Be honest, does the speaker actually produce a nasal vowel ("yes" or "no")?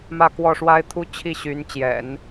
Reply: no